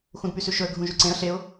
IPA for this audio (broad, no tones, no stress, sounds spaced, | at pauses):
x ũ d p y s ʉ ʃ ɵ ə̯ ɡʱ ũ ʒ ʉ ǀ ẽ ə̯ ɬ e ʊ̯